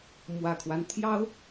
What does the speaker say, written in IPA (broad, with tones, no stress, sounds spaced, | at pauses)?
m w ä˨˩ kʰ w a˦ n t̪ʰ j ɑ˥ ʊ̯